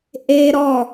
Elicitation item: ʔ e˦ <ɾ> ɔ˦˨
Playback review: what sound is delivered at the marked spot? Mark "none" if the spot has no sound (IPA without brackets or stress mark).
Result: ɾ